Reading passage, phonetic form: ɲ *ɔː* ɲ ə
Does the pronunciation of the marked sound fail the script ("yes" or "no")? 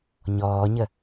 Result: no